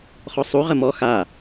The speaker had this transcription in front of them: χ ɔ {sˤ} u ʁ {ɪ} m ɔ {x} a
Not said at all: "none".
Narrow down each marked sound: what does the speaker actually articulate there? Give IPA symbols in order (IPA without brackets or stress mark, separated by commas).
sˤ, ə, x